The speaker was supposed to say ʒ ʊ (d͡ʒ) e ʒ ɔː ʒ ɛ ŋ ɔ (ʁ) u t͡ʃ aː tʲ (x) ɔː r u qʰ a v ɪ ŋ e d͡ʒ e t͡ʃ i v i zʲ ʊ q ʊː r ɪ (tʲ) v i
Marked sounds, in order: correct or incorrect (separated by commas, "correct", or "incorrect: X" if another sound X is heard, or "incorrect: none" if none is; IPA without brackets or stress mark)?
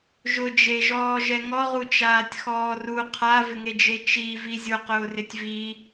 correct, correct, correct, correct